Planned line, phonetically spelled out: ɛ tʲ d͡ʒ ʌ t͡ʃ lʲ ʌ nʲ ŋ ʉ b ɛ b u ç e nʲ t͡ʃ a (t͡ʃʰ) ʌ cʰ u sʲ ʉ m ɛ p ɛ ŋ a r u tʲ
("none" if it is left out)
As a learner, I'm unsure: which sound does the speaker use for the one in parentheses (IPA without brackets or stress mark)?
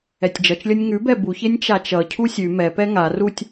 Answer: t͡ʃ